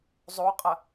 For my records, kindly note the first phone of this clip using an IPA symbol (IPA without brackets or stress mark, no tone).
zˤ